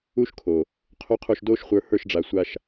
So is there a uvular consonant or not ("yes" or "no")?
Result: yes